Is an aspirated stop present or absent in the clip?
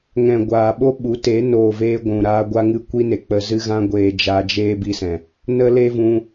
absent